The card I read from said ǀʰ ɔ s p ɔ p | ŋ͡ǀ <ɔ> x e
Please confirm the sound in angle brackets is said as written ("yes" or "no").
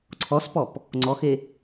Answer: yes